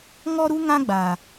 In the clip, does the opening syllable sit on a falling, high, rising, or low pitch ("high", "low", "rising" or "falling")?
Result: high